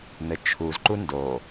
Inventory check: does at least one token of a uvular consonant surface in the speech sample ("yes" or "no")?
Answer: no